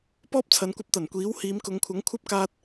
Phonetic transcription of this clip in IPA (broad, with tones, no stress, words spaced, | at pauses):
pɔː˥p̚t͡sʰɐ˨˧nkʷɐ˧p̚t̪ɐ˨˩n kʷiː˨˥w hiː˨˧mkʊ˨˧ŋkʷʰɐ˨˥ŋ kʷʰɐ˥p̚kaː˧t̚